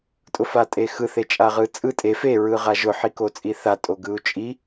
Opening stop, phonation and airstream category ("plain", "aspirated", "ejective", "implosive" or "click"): ejective